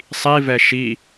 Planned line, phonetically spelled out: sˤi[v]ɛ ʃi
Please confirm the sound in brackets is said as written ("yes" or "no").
yes